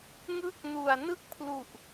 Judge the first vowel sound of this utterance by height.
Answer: high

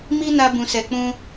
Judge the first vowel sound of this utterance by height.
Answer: high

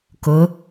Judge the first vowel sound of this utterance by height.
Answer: high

